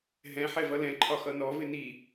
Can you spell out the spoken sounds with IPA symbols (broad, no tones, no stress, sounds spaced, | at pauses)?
ɦ ɛ̃ ħ ɛ v ʌ l ɛ̃ ǃʰ ɒ x ʌ n ɔ v ɪ n i